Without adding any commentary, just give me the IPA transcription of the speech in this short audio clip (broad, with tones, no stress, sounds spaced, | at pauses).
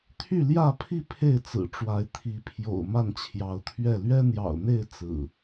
t̪ʰ y˥˨ l j ä˥˨ pʰ i˥˨ pʰ e˥˨ ɪ̯ t͡s ɹ̩˨˩ ʈ͡ʂ w a˨˦ ɪ̯ t̪ʰ i˨˦ pʰ j o̰˨˩ ʊ̯ m a˥˨ n t͡ɕʰ j ɑ˨˦ ʊ̯ t̪ʰ ɥ ɛ˥˨ l ɥ ɛ˦ n̪ j ɑ̰˨˩ ʊ̯ n̪ e˥˨ ɪ̯ t͡s ɹ̩˨˩